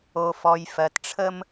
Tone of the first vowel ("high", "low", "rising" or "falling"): low